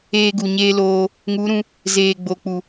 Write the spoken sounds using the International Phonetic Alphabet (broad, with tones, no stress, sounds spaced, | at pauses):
eː˧ ɡ u˨ ɲ eː˧ l oː˧ | ŋ u˨˦ ɾ ũ˧ | z eː˨ ɡ͡b o˨ k͡p u˨